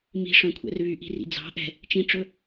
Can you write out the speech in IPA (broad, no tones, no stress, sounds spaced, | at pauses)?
m i̤ ʂ œ̃ kʷʰ ɛ̰ r β y ʔ i̤ r ḭ d͡z ɑ̤ ʔ ɛ̤ | t͡ʃ ĩ ʈ͡ʂ ɵ